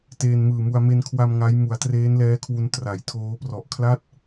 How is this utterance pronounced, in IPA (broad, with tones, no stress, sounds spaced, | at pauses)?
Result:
t eː˧ n m ɯː˨˩ m u˧ a̯ m e˧ n kʰ w a˧ m ŋ a˦˥ j m u˩˦ a̯ t r eː˦˥ n l ɛː˦˥ kʰ w u˧ n t r a˩˦ j tʰ oː˦˥ p r ɔ˨˩ ʔ kʰ l a˥˩ t̚